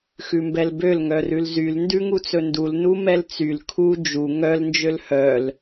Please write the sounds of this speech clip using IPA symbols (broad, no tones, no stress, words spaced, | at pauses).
xʉmbɛlbøl ŋœrʉlzyl ndʉŋut͡sɵndul numɛlt͡syl kʰu d͡ʒu ŋœl nd͡ʒølhœl